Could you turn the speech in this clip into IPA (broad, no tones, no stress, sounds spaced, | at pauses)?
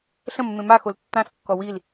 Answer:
ɬ ə̃ mː ẽ m a x o l tː ã s kː ɔ w i l